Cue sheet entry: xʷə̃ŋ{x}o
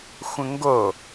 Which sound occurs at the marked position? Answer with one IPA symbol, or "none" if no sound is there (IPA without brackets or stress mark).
ɡ